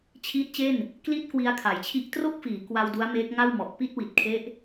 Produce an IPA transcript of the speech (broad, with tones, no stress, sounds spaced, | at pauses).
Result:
t͡ɕʰ iː˦˥ t̚ t͡ɕ e˥˩ n | k l i˥˩ t̚ k w i˧ a̯ kʰ a˩˦ j t͡ɕʰ i˦˥ ʔ t r o˥˩ k̚ f iː˩˦ k w a˧ w d u˦˥ a̯ m eː˦˥ k̚ ŋ a˥˩ w m ɔ˨˩ ʔ p i˥˩ t̚ w i˨˩ t̚ kʰ e˦˥ ʔ